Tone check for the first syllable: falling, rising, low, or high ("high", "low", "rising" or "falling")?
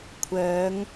rising